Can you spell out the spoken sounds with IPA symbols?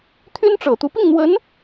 t̪ʰ y˥ n ʈ͡ʂ ɤ˨˩ t̪ u˧˥ p i˥˩ ŋ n̪ w ə˧˥ n

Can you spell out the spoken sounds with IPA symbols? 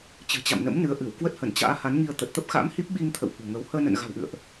t͡ɕ ɨ̤˨˩ t͡ɕ a̰˧˨ m n ə̰˧˥ m n ɨ˨˦ ə̯ ʔ ɨ˧˩ w k w ə˦˥ t̚ h ə˧˩ n t͡ɕ a̰ː˧˥ h a˨˦ n ŋ i˧ ə̯ t̪ ə˨˩ t̚ t̪ ə˦˥ p̚ x a̰˧˥ m h i˦˥ p̚ ɓ i˧ ŋ t̪ʰ ə̰˧˨ w h ṳ˨˩ ŋ ə˨˦ w h əː˧ n ə̰˧˨ n ɣ a̤˨˩ w ʔ ɨ̰˧˨ ə̯ ʔ

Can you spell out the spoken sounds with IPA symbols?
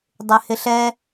dˤ ɪ h ɪ ɬ ɛ

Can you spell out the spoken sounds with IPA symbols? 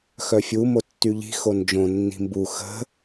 x œ fʲ u m o tː y ʎ i̤ x o n d͡ʒ õ nː i̤ m b u x ə̤

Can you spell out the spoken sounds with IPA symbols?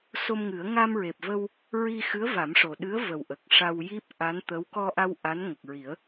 s o˧ m ŋ ɨ˨˩˦ ə̯ ŋ a˧ m ɹ e˨˩ p̚ v ə˧ w | ɹ i˧ x ɨ˧˥ ə̯ v a˨˩˦ m ʂ o˨˩ ɗ ɨ˧˥ ə̯ v ə˨˩ w ʔ ə˨˩ k̚ ʂ a˧ w j i˦˥ p̚ ʔ a˧˥ n t̪ ə˧˥ w k ɔ˧ ʔ a˧ w ʔ a˧˥ n ŋ ə˨˩ k̚ ɹ i˨˩˦ ə̯

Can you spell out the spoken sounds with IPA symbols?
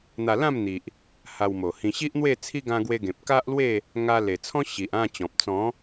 n̪ a˧ l ã˥˧ m n̪ i˨ ʔ | h a˧ w m o˨˩ h ĩ˧ ɕ i˦ ʔ n̪ w e˥˧ t͡sʰ i˦ ɡ ã˧ ɡ w e˧ ɡ ẽ˨ p̚ k a˦ ʔ l w e˥˧ | ŋ a˧ l e˨˩ t͡sʰ ɔ̃˦ ɕ i˨ ʔ ã˥˧ t͡ɕ ɔ̃˨ p̚ t͡s ɔ̃˨˦

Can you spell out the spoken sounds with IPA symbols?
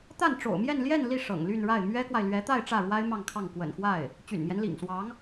t̪ a˥˩ n ʈ͡ʂ o̰˨˩ ʊ̯ m j ɛ˥˧ n l j ɛ˥˧ n l i˥˩ ʂ ɤ̰˨˩ ŋ l y˥˧ n ɻ a˥˩ ɪ̯ m ɥ ɛ˥ k w a˨ ɪ̯ l ɥ ɛ˧˥ t̪ a˥˧ ɪ̯ ʈ͡ʂ ä˥˩ ɻ w a˥ ɪ̯ m ɑ˥˧ ŋ kʰ ɑ˥˩ ŋ k w ə̰˨˩ n x w a˥˩ ɪ̯ | t͡ɕ y̰˨˩ n m j ɛ˦ n l ḭ˨˩ ŋ s w ɑ˧˥ ŋ

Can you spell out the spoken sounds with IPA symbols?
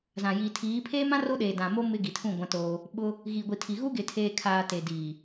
z ã˨ j i˨ tʰ iː˨˦ pʰ eː˦ m ã˦ r o˦ ɗ eː˨ d ã˨ m o˦ m ɪ˦ ɡ i˨ tʰ ũ˦˨ ɡʷ ã˦ t oː˦ | ɓ ʊ˦ | ɣ i˨ ɡʷ i˨ tʰ i˨ ɣ u˦ ɡ ɪ˨ tʰ eː˨ kʰ aː˨ t e˨ d iː˨

